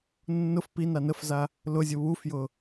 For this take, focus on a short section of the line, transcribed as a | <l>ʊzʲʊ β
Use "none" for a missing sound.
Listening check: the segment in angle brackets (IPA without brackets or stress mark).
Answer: l